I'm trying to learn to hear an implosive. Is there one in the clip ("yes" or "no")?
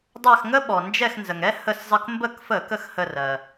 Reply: yes